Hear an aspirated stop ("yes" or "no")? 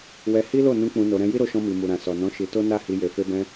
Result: no